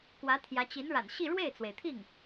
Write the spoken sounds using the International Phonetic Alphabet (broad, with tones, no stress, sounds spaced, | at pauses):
k w ä˧˥ t̪ʰ j ä˧˥ t͡ɕ i˧˥ n ɻ a̰˨˩ n ɕ i˥˧ ɻ w e˥˩ ɪ̯ t͡s w e˩ ɪ̯ t̪ʰ i˥˩ ŋ